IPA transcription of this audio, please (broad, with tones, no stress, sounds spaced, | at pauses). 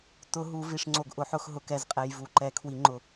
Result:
t ʊ˨˩˦ ɦ u˨˩˦ v i˨ ʂ ŋ͡ǀ o˨ ɡ ʔ ʊ˨˩˦ ħ ʊ˨˩˦ x ɦ ʊ˨ k ɛ˨ z qʼ ɛ˨ j v u˨˩˦ ǃ ɛ˨˩˦ kʰ w i˨˩˦ ŋ͡ǃ ʊ˨